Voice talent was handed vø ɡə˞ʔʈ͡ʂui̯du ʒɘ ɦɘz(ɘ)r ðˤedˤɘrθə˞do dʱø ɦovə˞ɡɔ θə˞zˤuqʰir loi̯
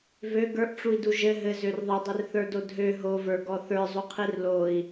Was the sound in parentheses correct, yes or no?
no